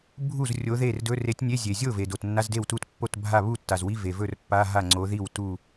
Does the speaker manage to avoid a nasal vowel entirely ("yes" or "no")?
yes